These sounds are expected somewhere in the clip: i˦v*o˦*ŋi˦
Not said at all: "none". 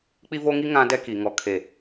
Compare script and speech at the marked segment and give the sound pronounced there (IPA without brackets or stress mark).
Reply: o˦